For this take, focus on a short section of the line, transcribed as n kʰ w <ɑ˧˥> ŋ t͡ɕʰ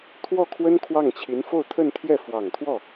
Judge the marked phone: incorrect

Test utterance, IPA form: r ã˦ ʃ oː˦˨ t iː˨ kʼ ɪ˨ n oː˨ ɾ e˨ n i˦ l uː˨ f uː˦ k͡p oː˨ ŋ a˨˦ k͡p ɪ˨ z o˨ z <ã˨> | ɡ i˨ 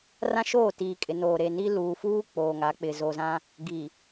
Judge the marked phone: incorrect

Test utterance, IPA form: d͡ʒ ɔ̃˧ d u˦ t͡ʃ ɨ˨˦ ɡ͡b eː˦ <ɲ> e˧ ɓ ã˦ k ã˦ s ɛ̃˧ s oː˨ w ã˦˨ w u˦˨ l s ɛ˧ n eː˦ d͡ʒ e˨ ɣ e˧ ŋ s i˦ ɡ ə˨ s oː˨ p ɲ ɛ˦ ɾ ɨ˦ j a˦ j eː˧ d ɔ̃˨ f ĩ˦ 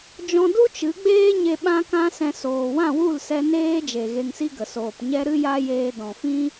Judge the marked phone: correct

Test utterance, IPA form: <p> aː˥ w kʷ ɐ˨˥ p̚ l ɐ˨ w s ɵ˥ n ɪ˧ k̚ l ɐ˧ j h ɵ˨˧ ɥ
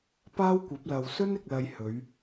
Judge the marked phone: correct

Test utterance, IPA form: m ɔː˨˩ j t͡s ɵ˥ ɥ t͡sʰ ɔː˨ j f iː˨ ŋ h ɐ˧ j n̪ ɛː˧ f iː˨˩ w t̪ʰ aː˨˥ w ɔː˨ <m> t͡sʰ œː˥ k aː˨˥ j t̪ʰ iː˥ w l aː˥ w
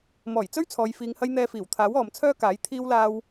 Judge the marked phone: correct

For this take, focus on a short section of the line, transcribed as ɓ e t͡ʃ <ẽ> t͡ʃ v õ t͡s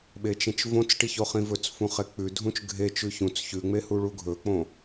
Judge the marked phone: correct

